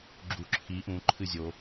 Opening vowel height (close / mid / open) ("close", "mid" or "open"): close